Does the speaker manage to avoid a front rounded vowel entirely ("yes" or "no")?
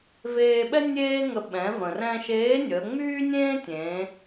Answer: no